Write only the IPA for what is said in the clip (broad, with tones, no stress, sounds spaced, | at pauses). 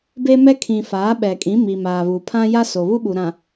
b e˦ m ɛ˦ kʰ ĩ˨ f aː˨˦ ɓ ɛ˨ kʼ ĩ˨˦ m i˨ m aː˨ β u˨ pʰ ã˦ j a˦ s o˨ β u˦ ɓ u˨ ɾ ã˨